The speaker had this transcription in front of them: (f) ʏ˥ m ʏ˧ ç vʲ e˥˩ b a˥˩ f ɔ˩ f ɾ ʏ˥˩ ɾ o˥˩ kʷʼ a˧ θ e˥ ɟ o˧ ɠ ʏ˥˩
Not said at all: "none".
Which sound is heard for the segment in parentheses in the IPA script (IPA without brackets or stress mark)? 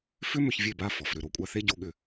f